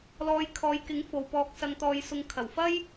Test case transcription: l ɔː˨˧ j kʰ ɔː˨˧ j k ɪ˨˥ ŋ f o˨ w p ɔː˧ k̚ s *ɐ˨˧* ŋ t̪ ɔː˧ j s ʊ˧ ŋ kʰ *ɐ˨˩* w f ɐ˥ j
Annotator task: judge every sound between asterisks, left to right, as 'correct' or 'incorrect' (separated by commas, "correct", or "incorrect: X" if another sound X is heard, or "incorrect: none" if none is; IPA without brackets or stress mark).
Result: incorrect: ɐ˧, correct